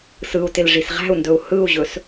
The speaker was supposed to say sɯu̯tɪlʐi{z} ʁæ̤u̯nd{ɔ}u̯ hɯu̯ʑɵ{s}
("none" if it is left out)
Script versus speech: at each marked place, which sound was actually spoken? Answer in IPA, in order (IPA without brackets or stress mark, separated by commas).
s, ɵ, s